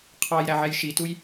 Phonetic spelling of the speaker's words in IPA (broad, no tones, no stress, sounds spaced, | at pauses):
qʰ ɑ j ɾ æ ʕ ɛ j ʃ i t u j